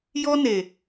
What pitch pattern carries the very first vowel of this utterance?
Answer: high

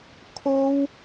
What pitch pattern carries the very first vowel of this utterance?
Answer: high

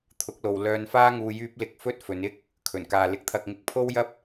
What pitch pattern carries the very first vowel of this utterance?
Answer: rising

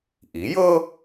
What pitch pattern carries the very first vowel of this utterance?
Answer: rising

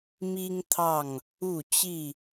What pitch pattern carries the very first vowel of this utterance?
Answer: high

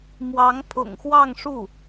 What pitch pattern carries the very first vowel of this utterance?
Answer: rising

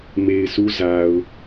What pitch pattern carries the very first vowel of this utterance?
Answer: low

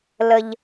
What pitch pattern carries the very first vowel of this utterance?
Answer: low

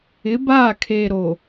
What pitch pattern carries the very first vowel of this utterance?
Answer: rising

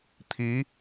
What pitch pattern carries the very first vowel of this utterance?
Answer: rising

